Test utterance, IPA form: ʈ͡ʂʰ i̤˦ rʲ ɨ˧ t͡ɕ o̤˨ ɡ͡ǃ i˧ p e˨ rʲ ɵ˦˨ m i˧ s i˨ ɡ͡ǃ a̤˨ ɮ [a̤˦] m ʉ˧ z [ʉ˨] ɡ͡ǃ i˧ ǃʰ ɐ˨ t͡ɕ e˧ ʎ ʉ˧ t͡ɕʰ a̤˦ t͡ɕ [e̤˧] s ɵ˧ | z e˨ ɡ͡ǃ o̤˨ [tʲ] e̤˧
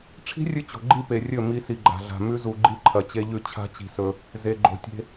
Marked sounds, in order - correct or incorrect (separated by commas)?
incorrect, incorrect, incorrect, correct